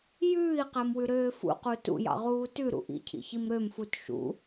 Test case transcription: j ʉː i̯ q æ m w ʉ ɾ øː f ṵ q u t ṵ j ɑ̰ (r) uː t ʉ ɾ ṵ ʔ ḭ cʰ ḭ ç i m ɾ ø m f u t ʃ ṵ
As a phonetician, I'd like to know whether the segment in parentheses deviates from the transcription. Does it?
yes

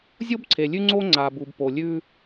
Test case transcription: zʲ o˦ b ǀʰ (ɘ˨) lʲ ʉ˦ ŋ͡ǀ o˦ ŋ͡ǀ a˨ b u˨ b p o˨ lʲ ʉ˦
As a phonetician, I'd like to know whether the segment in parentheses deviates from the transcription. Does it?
yes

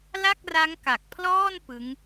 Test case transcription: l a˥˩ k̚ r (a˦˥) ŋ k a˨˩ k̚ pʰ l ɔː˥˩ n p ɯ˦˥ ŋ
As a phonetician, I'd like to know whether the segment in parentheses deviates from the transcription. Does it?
no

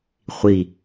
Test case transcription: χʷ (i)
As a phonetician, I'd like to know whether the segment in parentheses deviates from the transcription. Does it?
no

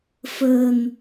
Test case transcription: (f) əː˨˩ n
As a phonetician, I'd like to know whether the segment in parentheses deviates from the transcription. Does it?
no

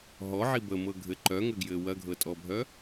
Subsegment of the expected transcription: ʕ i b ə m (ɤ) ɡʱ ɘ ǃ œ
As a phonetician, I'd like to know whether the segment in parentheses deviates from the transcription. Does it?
no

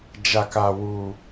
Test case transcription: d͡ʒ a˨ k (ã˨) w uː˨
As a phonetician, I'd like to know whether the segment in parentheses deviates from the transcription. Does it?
yes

